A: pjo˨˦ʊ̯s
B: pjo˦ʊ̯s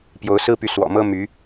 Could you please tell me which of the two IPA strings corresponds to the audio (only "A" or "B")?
A